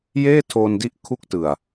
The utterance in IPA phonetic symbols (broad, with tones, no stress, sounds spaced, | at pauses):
j eː˥˩ tʰ oː˧ n d i˦˥ ʔ kʰ u˥˩ k̚ t ɯ˨˩ a̯